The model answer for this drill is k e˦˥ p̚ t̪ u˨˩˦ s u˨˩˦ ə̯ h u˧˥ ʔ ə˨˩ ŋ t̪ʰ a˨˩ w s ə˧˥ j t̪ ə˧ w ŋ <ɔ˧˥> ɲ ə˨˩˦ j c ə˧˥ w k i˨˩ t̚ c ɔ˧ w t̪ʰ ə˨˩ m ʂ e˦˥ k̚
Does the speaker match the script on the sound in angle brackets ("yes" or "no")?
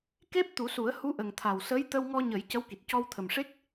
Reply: no